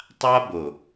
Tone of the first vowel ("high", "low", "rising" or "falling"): high